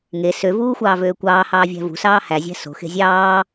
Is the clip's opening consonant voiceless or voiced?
voiced